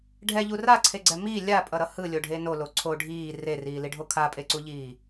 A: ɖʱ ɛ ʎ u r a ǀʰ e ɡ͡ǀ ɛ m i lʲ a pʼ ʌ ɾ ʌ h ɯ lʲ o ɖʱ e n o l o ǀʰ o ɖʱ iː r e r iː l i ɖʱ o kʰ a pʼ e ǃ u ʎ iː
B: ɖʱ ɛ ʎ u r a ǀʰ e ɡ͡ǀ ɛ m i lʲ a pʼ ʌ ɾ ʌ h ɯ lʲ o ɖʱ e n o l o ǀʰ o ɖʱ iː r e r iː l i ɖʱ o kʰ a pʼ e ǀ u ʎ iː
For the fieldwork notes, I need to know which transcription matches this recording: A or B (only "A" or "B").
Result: B